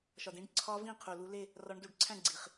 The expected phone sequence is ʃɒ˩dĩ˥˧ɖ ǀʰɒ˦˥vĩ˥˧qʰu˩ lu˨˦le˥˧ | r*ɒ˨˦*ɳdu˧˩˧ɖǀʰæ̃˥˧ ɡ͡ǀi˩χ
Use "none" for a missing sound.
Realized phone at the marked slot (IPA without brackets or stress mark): ɒ˨˦